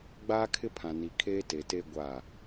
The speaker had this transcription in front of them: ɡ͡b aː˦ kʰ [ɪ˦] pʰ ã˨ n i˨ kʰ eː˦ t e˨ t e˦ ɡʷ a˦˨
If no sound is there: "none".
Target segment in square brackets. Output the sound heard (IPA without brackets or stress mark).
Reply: ɪ˦